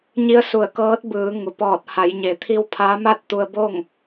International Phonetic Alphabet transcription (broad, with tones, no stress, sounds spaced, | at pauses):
ɲ i˧˥ ə̯ s u˧˩ ə̯ k ɤː˧˥ t̚ b ɯː˩˧ ŋ u˩ p ɔː˧˩ t̚ h a˩˧ j ɲ e˩˧ t̪ʰ i˧ w pʰ a˧˥ m a˥˨ t̚ t̪ u˧ ə̯ b o˥˨ ŋ